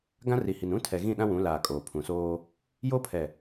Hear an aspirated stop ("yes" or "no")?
yes